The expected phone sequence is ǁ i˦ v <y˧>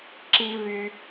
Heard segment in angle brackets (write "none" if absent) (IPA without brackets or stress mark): y˧